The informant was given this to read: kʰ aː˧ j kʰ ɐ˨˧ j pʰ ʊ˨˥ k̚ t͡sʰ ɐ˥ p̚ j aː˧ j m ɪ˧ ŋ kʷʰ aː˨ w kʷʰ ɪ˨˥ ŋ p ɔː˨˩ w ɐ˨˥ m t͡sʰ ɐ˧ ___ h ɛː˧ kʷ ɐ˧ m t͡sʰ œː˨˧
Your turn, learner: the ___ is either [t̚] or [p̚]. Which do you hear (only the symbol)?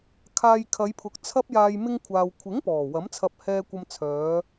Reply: p̚